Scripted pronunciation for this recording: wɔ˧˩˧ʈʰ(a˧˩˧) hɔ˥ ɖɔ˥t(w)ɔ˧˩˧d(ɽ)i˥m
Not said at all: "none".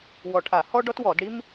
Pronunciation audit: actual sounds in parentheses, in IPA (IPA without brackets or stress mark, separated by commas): a˧˩˧, w, ɽ